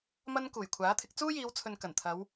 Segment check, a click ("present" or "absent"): absent